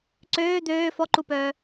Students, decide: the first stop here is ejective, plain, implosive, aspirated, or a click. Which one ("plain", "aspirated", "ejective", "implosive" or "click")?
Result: click